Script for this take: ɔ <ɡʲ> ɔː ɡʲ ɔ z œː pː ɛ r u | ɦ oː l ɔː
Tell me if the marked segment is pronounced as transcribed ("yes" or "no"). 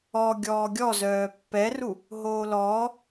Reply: yes